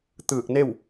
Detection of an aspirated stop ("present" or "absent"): absent